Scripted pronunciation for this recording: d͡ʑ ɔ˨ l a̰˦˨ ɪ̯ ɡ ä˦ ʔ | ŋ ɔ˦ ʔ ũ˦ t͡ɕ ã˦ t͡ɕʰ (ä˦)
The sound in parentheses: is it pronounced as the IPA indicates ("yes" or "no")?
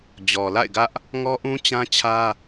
yes